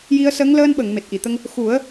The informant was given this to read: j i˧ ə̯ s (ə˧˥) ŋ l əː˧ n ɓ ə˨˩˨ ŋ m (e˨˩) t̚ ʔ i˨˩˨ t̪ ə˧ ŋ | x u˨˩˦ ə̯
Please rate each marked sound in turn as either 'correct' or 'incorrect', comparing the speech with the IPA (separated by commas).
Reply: correct, correct